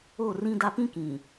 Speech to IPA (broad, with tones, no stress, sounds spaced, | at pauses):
o˦˨ r ĩ˦ d a˦ p ĩ˦ k ĩ˨